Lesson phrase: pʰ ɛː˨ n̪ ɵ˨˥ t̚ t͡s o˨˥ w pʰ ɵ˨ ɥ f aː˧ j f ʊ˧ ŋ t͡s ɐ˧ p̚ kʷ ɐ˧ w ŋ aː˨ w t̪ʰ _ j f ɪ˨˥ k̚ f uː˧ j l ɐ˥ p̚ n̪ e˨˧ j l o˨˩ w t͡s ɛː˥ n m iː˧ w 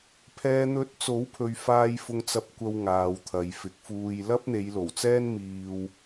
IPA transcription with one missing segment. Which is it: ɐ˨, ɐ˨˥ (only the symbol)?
ɐ˨